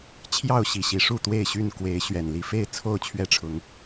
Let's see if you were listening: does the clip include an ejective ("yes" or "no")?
no